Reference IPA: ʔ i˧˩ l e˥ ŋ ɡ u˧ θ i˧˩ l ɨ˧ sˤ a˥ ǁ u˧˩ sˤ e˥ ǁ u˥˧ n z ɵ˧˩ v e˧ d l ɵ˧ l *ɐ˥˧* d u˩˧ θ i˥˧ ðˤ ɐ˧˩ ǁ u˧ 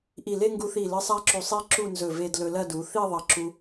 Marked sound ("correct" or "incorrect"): correct